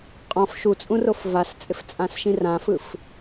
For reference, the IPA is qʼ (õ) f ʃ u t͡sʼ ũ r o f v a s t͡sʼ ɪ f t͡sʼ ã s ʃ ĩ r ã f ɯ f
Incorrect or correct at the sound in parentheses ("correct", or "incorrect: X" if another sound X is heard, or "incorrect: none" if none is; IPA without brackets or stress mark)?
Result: incorrect: ɔ̃